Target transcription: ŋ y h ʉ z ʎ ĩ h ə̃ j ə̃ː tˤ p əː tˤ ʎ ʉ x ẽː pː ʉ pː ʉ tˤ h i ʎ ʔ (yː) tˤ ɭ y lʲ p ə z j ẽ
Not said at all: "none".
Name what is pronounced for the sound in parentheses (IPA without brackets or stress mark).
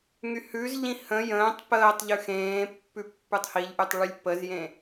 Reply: y